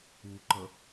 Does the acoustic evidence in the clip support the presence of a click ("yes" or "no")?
yes